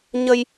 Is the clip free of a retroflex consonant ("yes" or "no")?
yes